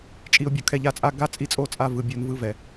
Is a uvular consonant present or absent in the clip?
absent